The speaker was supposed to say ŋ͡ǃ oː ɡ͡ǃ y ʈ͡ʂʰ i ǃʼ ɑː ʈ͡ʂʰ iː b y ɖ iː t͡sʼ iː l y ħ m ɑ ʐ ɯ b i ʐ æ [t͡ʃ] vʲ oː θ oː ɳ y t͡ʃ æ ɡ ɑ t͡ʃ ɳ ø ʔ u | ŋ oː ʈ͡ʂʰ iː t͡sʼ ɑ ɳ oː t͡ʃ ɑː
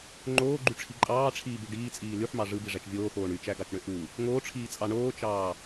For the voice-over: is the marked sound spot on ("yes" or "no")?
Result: yes